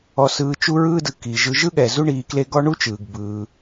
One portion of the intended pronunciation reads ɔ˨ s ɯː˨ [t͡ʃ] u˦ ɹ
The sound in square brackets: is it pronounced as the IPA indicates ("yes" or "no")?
yes